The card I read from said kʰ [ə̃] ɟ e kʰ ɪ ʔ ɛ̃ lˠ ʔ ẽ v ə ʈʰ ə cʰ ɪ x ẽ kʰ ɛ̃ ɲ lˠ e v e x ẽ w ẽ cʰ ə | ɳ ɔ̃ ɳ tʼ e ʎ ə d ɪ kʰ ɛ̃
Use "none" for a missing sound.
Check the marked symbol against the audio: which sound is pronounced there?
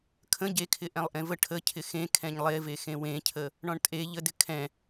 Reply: ə̃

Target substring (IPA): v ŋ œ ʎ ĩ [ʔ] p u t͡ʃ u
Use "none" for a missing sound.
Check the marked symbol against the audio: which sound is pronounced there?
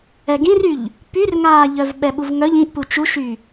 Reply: ʔ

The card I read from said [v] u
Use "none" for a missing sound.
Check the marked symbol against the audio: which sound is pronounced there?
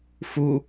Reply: f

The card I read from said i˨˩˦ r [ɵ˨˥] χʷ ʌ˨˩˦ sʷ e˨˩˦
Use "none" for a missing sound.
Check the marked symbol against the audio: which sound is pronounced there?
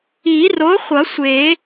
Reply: o˨˥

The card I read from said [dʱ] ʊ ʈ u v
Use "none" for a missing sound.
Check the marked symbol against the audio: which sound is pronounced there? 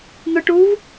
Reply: n̪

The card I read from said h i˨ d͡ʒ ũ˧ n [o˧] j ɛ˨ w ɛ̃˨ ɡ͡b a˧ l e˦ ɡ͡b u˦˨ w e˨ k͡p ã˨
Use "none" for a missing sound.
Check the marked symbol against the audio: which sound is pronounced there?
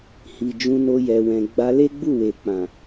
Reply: o˧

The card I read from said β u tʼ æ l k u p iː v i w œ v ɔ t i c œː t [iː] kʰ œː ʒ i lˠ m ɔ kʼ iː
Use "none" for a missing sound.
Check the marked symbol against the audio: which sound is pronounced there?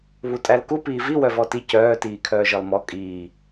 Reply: iː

